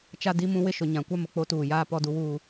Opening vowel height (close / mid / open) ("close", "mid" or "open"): open